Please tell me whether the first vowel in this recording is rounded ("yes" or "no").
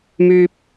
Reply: yes